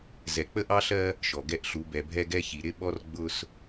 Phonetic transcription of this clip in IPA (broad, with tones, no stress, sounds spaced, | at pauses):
z ɛ˨ k͡p ə˦ ʔ ɑ˦ ɬ ɜ˦ | ʃ ɔ˨ ɡ ɛ˦ ʔ ɬ u˨˦ b ɛ˨ bʱ ɛ˦ ɡ ɛ˦ ç i˨ ɾ ɪ˦ ɓ ɔ˦ r ɡ͡b ʊ˦ s